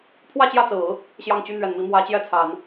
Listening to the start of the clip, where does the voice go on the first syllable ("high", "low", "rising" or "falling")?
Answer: falling